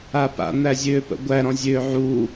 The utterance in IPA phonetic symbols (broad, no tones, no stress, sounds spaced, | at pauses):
a p a̰ n̪ æ zʲ øː p ə̰ ɡʷ æ ɾ ɔ̃ zʲ øː ʕ uː